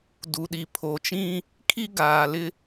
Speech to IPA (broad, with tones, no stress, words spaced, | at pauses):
du˨ɗi˨ pʰo˨t͡ʃĩ˦ | kʰi˦ɡaː˨lɪ˦